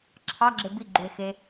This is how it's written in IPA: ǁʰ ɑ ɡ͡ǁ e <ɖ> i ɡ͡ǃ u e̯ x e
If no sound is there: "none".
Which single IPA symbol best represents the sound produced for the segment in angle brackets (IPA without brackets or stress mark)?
b